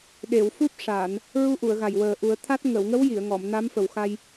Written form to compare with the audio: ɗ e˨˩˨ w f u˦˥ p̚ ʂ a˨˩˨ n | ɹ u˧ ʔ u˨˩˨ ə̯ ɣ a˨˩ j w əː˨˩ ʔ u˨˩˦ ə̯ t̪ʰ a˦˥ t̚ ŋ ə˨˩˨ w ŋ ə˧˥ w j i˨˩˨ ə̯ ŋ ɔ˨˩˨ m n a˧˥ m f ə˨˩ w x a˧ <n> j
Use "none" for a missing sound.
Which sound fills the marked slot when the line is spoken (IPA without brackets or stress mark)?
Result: none